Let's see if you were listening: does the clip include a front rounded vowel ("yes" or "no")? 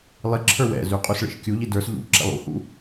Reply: yes